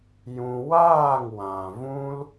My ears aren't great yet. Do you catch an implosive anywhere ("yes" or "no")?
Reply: no